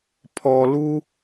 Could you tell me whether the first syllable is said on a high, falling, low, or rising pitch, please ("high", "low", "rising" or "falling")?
low